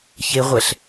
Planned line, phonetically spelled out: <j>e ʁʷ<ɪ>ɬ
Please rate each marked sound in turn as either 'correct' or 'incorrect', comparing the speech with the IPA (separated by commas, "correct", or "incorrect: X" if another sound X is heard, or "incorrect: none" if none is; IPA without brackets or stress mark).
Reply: incorrect: ç, incorrect: ɛ